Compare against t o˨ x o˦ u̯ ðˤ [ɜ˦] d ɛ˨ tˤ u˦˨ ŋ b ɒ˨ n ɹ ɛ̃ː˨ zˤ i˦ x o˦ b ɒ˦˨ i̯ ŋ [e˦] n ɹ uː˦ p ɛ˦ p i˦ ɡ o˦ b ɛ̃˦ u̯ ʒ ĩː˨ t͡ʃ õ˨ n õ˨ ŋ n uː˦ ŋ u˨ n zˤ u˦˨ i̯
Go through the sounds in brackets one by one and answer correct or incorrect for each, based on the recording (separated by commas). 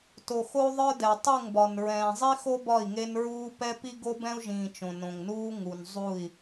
incorrect, correct